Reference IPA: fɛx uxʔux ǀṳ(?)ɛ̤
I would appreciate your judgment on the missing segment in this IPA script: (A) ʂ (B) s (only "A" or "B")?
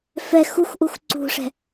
A